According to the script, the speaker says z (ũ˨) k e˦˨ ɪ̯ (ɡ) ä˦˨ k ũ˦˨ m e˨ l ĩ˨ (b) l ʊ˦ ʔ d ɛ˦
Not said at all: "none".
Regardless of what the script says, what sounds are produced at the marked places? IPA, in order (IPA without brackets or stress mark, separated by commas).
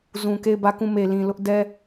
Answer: ũ˨, b, none